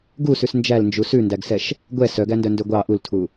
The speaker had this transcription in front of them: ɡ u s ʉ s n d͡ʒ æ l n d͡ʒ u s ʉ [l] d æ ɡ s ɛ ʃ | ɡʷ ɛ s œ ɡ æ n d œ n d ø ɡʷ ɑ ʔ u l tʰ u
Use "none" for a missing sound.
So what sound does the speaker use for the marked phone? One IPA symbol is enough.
n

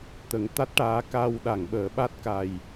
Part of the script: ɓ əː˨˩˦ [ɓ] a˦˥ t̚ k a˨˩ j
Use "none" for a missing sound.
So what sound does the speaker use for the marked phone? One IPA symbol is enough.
ɓ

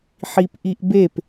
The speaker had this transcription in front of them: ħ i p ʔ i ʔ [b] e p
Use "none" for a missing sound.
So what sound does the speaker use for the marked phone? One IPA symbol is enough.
b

